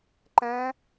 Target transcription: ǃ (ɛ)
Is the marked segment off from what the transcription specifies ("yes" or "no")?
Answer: yes